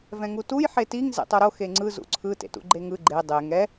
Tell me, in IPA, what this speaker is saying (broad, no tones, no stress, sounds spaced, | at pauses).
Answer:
v ɛ̃ ŋ u t u j ħ e t i ŋ z ḛ tˤ o ɾ o x e ŋ͡ǀ ɯ z ṵ ǀʰ ɯ t ḛ t ṵ ɡ͡ǃ e ŋ ɯ ɡ͡ǃ e dˤ e ŋ ɛ